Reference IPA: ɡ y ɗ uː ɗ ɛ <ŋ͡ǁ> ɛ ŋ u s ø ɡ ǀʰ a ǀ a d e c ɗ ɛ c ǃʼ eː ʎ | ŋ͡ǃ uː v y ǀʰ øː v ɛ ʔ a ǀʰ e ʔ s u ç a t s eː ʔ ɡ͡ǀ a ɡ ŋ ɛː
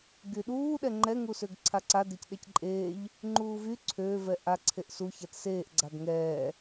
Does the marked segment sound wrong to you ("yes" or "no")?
yes